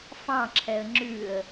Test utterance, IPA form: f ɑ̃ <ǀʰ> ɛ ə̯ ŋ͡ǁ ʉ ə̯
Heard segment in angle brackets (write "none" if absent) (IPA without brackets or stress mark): ǁʰ